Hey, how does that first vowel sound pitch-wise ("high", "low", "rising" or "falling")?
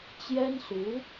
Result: high